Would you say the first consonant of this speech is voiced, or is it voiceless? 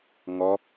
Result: voiced